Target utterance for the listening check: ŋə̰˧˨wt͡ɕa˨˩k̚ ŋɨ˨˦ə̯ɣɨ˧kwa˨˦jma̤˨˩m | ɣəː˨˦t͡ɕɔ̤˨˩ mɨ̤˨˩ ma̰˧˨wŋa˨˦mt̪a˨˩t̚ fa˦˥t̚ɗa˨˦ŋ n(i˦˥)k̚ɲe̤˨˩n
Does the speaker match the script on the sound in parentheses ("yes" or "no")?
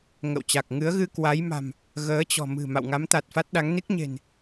yes